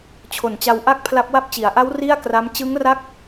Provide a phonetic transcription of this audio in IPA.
t͡ɕʰo˨˩nt͡ɕa˧wʔa˥˩k̚pʰla˦˥p̚ wa˦˥p̚t͡ɕi˩˦a̯ʔa˦˥w ri˥˩a̯kra˦˥m t͡ɕɯ˦˥ŋra˦˥k̚

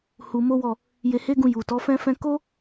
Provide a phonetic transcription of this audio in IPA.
hu˧mo˦wɔ˦˨ | je˧he˦ɡũ˧ ju˨ tɔ˨˦fɛ̃˦fɛ̃˦ ko˦

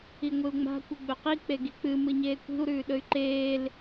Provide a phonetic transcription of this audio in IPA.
iŋʷɨu̯ŋ͡ma̤ kʷɨɡ͡bɵqi k͡peɡik͡pɨ mɨɲeːkʷi̤u̯ ɾʉːɗɵy̯ǃeːl

